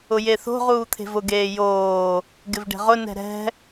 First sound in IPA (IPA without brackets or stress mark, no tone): ʊ